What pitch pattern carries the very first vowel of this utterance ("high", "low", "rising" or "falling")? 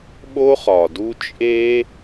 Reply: high